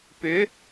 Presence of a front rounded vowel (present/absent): present